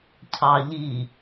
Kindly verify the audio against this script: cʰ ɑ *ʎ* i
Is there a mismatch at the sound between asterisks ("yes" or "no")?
no